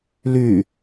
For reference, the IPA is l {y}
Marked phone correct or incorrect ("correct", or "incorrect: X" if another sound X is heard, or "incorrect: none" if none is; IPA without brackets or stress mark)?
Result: correct